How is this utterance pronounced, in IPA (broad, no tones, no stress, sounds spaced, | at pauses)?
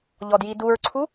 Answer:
ʎ ɔ d j i d u ɹ ǀʰ u